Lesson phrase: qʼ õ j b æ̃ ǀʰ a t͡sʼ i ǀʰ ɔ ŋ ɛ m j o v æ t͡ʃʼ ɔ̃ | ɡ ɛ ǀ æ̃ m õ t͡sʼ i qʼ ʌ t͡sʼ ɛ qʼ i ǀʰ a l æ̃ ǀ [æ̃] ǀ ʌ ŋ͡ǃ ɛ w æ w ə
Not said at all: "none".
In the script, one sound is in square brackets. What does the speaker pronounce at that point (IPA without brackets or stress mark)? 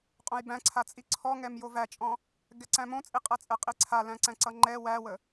æ̃